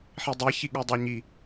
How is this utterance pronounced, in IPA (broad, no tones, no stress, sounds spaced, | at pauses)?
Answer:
ħ i dˤ e ç i ɠ u dˤ ɘ o̯ ɲ i